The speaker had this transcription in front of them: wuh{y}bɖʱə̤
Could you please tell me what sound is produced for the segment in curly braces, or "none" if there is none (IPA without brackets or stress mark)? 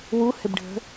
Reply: ɪ